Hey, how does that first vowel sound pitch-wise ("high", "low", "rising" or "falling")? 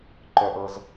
high